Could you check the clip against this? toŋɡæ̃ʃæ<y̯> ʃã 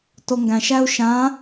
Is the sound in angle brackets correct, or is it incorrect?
incorrect